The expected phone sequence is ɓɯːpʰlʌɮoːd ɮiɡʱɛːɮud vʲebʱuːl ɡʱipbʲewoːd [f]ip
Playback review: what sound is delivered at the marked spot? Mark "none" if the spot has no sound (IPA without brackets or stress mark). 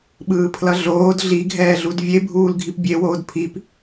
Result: pʰ